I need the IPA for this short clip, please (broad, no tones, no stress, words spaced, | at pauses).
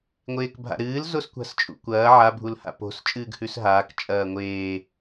ŋʷeːkbʱa̰ɾɨːl zoskʷa̤st͡ʃʼṵkʷɐː ʕa bʱulha̰po̤s t͡ʃʼɨːɡhʉsɦaːk t͡ʃʼɐːŋʷeː